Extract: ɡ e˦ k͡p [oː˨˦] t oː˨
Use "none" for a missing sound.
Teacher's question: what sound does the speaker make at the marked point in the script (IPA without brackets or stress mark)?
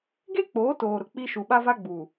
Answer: oː˨˦